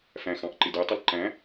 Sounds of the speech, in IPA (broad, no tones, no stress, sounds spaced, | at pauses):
f æ̃ x ɑ̃ ʔ ǃ ɪ d ɛ tˤ ʊ l ǃ æ̃